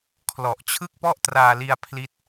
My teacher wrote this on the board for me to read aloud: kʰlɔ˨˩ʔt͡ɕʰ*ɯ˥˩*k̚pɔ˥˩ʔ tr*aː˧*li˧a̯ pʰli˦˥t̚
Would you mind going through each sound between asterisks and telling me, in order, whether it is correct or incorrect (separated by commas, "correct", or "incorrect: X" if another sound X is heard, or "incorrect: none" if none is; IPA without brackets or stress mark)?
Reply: correct, correct